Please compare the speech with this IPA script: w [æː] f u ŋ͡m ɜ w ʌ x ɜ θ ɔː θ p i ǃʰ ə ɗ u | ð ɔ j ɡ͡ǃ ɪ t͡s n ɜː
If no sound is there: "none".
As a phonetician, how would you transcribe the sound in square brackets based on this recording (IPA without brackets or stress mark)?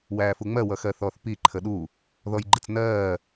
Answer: æː